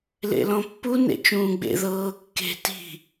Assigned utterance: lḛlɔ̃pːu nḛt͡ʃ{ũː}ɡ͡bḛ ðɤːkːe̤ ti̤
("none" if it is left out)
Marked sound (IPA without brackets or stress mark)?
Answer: ũː